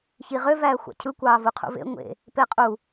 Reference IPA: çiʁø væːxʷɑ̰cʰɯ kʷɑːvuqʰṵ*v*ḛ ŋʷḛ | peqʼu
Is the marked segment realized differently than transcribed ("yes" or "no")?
no